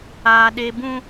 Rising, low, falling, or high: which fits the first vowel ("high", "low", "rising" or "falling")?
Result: high